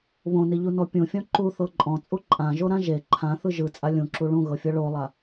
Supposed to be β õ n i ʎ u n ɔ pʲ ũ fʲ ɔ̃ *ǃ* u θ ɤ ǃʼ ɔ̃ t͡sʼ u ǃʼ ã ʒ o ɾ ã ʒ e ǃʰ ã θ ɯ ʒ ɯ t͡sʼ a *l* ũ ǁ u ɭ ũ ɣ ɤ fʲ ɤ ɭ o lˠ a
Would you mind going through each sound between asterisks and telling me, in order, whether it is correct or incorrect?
correct, incorrect: lʲ

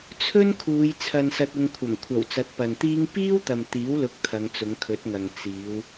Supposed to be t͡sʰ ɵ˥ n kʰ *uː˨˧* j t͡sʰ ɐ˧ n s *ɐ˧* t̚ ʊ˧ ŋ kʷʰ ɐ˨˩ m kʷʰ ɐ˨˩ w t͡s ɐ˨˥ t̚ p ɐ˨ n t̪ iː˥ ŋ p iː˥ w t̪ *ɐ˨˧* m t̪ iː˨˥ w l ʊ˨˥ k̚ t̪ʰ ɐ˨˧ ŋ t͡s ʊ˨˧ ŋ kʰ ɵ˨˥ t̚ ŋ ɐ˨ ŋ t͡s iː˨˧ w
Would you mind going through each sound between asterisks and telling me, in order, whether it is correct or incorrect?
correct, correct, incorrect: ɐ˨

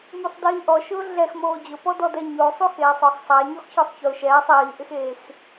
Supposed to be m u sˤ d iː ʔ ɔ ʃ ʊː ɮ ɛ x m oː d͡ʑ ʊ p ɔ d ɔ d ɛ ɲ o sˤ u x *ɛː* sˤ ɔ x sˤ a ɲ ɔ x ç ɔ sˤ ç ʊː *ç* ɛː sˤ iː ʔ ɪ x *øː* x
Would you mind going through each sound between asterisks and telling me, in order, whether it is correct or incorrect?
incorrect: eː, incorrect: ʃ, incorrect: eː

